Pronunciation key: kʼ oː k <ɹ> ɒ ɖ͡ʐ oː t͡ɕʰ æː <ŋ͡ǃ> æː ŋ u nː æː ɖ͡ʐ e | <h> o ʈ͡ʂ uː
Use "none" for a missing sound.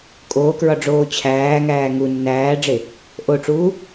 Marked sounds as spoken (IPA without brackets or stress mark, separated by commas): ɹ, ŋ, ʔ